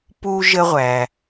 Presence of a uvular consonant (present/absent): present